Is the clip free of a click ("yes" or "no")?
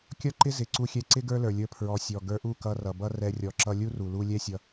no